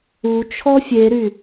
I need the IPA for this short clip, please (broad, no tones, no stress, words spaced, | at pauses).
u t͡ʃʰɔfʲeɾy